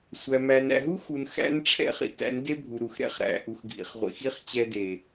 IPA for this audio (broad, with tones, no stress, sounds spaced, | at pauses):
sʷ æ˨ m æ˨ n æ̰˨ ɦ u˦ x u˨ n x æ̰˦ n ʈ͡ʂʰ ɛ̰˦ χ ḭ˨ t æ̰˨˦ n d e˦ bʱ u˨ ɾ u˨ x ɾ ɛ̰˦ χ ɾ æ̰˨ ʔ u˨ x ɡʱ ḭ˨ χ ʁʷ ḭ˨ x i˦ χ t͡ɕ ɛ˦ d e˨